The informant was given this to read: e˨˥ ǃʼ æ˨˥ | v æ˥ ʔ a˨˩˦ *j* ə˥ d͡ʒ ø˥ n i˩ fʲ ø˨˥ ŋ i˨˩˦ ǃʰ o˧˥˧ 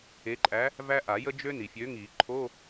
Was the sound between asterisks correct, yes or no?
yes